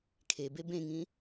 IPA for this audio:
kʰebe bẽŋĩ

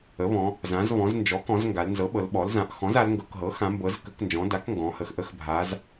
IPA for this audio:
ə˩˥βɔ̃˩˧ | zã˩˧zβɔ̃˩˧znd͡ʒɔ˩˥kɔ̃˩˧z ŋɡa˩˧lnzɤ˩˥ɓɤ˩˧l ɓɔ˩˧lzã˩˧ʔ xɔ̃˩˥za˩˧l ŋɡɤ˩˧kɦɤ˩˥ xã˩˧mbɤ˩˧z kə˩˥knd͡ʒɔ̃˩˧ da˩˥kŋɡɔ̃˩˧hə˩˧x ʔə˩˥xbʱa˩˧z

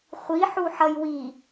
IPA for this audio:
χʷiħuħʌj wi

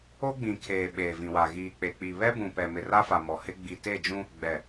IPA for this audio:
o˦ɡ͡bĩ˨kʰeː˨ ɓeː˨vĩ˨wa˨ ɣiː˨k͡pe˨k͡pi˨ βɛ˦bũ˨pɛ˨ mɪ˨ra˦fa˨ mɔ˨hɪ˦ ɡ͡bi˨te˦˨d͡ʒũ˦ | ɡ͡bɛ˨

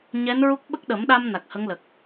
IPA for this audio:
ɲɛ˧˥nɹu˦˥k̚ ɓə˦˥k̚ɗə˨˩˦mɗa˧m na˨˩k̚hə˧˥ŋlə˨˩k̚

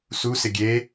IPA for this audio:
susɪ ɡʲe

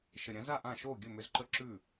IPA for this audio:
ʃə˨ɾʲã˨˦za˦˨ʔã˦˨ ʃo˦˨ɡʲɵ˦˨mʏ˧zǃə˦˨ ǁʉ˦˨

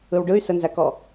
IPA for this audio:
ɯwɖɯy̯ sənzækɔ

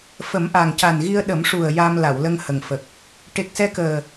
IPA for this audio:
fə˨˩˦mʔa˨˩ŋca˨˩nɣi˧ə̯ ɗə˨˩˦mʂu˨˩ə̯ ja˧m la˨˩˨wlə˧ŋhə˨˩ŋfə˨˩k̚ | ʈe˨˩k̚sɛ˧kəː˨˩

